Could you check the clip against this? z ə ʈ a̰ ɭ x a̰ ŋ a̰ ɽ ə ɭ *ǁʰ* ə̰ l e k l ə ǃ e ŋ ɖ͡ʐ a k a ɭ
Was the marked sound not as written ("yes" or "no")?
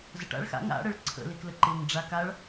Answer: yes